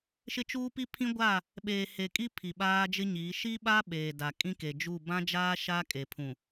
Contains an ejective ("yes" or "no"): yes